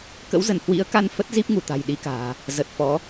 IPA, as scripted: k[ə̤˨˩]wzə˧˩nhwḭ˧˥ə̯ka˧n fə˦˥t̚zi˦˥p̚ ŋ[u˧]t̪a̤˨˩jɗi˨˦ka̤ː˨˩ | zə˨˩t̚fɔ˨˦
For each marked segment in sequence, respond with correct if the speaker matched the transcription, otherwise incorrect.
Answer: incorrect: ə̰˧˥, incorrect: u˧˩

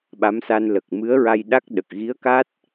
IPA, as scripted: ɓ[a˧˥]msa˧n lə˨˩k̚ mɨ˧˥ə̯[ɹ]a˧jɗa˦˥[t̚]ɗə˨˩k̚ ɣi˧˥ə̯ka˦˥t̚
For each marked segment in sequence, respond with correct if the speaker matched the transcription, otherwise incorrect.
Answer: correct, correct, incorrect: k̚

